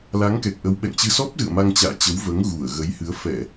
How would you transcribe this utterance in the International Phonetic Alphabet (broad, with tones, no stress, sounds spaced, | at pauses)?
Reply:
l a˨˦ ŋ k ɛ˨˩ k̚ ʔ ə˨˦ w ɓ ɛ̰˧˨ ŋ t͡ɕ ɨ˧ s ɔ˦˥ p̚ z ɨ̰˧˨ ə̯ m a˧ ŋ t͡ɕ a̰ː˧˨ t͡ɕ ə˨˦ w v əː˨˦ ŋ ɣ u˧˩ ə̯ ɣ ə˨˦ j h ɨ˨˦ ə̯ f ɛ˧˩˨